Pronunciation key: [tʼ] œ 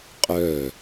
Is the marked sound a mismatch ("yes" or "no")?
yes